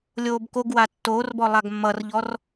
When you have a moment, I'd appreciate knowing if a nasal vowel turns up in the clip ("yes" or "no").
no